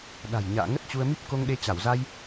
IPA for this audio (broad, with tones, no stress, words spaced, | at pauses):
ɗa̤˨˩j ɲa̰ː˧˨ ŋə˦˥t̚t͡ɕu˧ə̯mi˦˥p̚ ko˧ŋɗe˧ t͡ɕa˧˩wza˧j